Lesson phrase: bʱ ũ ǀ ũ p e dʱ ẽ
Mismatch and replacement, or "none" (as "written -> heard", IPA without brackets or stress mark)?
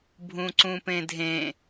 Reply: e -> ẽ